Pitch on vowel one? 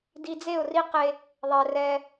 low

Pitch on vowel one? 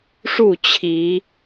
falling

